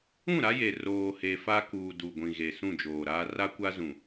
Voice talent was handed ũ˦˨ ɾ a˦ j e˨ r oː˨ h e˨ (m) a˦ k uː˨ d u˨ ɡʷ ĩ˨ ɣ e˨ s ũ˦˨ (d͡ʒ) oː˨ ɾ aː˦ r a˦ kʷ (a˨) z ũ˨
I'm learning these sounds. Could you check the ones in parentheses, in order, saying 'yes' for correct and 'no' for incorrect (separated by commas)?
no, yes, no